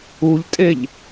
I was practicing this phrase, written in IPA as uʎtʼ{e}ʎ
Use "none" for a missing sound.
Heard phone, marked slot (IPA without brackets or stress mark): e